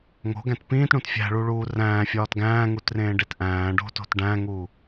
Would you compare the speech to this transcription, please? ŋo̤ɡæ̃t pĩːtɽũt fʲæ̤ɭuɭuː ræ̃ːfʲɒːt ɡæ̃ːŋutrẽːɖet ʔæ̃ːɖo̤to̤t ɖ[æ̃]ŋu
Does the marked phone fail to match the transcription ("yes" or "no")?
no